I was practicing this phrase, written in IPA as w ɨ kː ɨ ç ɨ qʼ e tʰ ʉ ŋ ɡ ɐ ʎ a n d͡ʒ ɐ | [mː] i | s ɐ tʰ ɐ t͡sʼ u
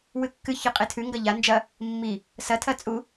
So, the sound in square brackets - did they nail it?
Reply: yes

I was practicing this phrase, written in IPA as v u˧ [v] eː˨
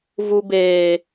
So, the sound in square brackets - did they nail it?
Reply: no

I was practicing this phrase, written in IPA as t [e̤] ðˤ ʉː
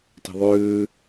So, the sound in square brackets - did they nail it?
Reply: yes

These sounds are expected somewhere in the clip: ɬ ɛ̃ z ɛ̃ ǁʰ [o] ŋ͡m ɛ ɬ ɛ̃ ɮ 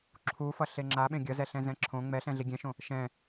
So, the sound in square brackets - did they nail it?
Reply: no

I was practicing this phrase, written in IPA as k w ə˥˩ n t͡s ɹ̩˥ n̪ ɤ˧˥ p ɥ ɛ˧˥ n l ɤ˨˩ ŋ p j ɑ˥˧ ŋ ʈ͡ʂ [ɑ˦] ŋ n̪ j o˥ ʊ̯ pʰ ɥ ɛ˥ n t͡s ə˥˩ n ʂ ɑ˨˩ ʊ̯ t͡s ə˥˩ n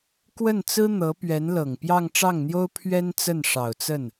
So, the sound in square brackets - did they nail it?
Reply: no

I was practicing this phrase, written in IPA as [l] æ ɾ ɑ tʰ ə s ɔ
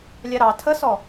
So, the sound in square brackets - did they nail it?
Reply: no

